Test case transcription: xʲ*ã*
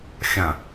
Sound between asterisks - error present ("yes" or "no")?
no